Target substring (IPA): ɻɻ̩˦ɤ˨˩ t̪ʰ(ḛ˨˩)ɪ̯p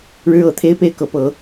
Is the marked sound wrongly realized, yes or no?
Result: yes